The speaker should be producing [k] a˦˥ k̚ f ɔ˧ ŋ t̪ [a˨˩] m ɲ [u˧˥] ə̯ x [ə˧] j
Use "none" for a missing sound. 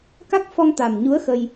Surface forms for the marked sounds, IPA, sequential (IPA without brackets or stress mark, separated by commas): k, a˨˩, u˧˥, ə˧